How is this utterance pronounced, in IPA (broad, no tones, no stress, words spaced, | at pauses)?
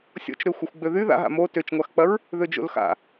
sʲɔ̰t͡ʃɾø xʷɐxʷɡ͡bøðy ða̰ɦa̰ mo tøt͡ʃŋʷaxk͡pɐɹ | ðød͡ʒo̰lxa̰